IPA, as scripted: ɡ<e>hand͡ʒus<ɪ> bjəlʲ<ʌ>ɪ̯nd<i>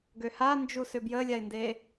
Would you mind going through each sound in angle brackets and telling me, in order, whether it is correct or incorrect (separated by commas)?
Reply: incorrect, incorrect, incorrect, incorrect